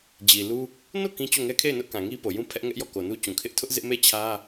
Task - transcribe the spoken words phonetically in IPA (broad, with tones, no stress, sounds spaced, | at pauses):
d͡ʑ i˨ l u˦ | n o˦˨ k ĩ˦ t͡ɕ o˦˨ ŋ ɛ˦ kʰ e˦˨ ɪ̯ n ʊ˦ ʔ k ã˨ ŋ i˦ p o˨ j ũ˦ pʰ ɛ˦ ʔ ŋ ɛ˦ ʔ j ɔ˦˨ k o˨ n u˦ t͡ɕ ũ˨ kʰ ɪ˦ ʔ tʰ ʊ˦ ʔ z ɪ˦ ʔ m e˦˨ t͡ɕʰ ä˦